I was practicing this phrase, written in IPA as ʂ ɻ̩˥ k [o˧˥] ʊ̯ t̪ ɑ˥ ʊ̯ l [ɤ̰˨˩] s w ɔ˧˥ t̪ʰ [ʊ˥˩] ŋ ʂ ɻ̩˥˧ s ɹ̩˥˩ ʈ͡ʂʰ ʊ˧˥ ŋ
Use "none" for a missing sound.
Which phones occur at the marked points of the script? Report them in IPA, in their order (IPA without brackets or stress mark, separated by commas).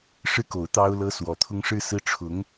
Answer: o˧˥, ɤ˥, ʊ˥